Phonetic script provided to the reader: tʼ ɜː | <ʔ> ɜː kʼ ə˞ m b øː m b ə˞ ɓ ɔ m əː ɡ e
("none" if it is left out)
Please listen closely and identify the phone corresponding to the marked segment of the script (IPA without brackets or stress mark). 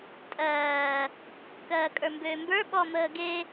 k